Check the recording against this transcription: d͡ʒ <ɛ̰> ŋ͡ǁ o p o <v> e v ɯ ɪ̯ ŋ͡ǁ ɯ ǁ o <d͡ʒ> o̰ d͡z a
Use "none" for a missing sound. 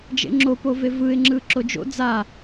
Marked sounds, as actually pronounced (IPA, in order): ḛ, v, d͡ʒ

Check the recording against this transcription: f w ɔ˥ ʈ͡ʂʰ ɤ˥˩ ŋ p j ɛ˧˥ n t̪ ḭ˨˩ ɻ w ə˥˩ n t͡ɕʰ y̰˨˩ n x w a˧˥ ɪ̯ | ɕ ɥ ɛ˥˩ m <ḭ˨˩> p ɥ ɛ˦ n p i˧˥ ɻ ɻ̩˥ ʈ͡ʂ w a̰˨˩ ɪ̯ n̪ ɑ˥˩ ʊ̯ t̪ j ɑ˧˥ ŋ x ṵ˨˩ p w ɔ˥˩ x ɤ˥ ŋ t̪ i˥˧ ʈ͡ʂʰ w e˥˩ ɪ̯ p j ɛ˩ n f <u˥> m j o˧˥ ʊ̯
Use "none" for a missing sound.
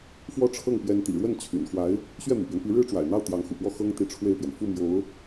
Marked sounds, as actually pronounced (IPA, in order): ḭ˨˩, u˥˩

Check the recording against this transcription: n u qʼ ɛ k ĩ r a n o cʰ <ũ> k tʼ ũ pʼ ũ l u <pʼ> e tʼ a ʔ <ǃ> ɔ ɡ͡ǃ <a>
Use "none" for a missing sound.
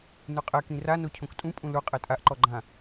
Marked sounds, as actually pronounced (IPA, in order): õ, qʼ, ǃ, ã

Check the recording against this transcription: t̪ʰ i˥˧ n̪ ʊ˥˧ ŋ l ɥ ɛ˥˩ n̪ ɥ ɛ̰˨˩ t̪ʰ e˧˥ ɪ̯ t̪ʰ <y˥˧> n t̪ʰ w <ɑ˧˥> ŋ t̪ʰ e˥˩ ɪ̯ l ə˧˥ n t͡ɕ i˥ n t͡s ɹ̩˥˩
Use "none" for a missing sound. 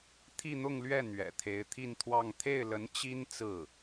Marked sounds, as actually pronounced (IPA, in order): i˥˧, ɑ˥˧

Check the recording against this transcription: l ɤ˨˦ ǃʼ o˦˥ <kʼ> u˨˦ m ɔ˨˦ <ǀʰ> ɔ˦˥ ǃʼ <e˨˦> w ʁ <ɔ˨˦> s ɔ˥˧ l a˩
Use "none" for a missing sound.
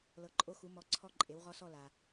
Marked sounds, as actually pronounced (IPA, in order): x, ǀʰ, e˨˦, ɔ˦˥

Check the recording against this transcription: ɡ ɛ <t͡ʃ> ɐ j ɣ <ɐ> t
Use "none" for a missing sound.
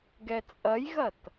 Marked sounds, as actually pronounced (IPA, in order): t͡sʼ, ɐ

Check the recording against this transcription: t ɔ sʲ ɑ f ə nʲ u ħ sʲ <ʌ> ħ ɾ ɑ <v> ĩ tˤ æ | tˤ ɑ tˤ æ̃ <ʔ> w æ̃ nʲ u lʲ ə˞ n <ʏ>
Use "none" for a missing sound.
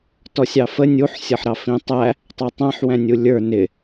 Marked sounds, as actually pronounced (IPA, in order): ʌ, f, ħ, ɪ

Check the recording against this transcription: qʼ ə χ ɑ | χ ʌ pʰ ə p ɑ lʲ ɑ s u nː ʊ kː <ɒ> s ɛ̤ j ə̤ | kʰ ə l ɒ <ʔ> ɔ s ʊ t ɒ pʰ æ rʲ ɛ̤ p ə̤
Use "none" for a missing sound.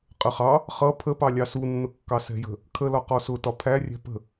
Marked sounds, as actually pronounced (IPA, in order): ɑ, q

